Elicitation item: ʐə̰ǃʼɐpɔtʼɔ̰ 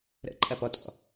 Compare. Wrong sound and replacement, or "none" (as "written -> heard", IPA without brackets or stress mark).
ʐ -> ɾ